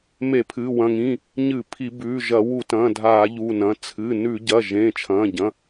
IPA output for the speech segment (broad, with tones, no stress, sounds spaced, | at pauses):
m e˧˩˧ pʰ ɨ˩˧˩ w ɐ̃˩˧˩ ŋ ĩ˩˧˩ | ɲ ɨ˧˩˧ pʰ i˧˩˧ b ʉː˩˧˩ ʒ ɐ˧˩˧ w u˧˩˧ t ɐ̃ː˩˧˩ dʱ aː˧˩˧ ʎ uː˩˧˩ n ɐ̃˩˧˩ t͡sʰ ɨ˩˧˩ n ʉ˧˩˧ ɟ ɐː˩˧˩ ʒ ẽː˩˧˩ t͡ʃʰ ɐ̃ː˩˧˩ ɟ ɐ̃˩˧˩